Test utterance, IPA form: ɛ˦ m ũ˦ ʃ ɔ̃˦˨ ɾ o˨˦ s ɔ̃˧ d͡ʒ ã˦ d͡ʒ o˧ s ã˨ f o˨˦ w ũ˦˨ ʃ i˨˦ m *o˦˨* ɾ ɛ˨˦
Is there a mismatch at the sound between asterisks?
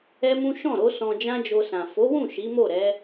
no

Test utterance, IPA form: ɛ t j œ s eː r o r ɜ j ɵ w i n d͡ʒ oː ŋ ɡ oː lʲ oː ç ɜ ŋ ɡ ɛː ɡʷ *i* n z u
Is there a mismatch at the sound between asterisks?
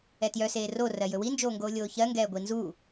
no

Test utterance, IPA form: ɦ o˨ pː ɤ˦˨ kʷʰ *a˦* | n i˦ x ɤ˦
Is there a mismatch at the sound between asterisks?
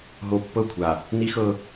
yes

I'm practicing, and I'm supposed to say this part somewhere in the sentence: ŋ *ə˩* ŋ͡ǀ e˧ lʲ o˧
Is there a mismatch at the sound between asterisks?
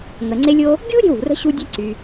no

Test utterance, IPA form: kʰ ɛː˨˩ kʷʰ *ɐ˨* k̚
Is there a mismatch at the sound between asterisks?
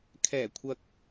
no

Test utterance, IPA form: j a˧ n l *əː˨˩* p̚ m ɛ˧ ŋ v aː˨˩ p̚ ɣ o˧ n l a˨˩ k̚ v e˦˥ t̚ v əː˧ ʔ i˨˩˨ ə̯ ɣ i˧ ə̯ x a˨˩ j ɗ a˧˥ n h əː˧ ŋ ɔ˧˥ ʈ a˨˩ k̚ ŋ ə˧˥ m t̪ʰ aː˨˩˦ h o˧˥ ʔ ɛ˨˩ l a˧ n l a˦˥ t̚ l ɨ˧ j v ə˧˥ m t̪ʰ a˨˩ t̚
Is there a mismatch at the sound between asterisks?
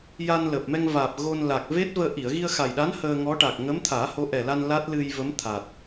no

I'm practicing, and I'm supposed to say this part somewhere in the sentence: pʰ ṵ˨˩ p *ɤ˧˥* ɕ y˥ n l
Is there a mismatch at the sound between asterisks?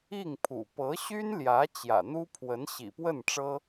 no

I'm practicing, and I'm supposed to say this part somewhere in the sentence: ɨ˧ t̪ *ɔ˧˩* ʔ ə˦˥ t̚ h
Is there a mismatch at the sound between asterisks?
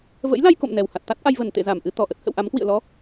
no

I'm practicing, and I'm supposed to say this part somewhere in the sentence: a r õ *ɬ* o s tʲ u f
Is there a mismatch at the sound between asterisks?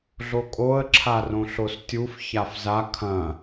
no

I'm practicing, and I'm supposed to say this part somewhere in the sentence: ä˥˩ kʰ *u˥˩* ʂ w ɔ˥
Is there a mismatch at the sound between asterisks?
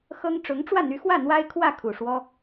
yes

